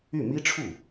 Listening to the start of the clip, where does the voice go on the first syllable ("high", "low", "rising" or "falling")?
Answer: falling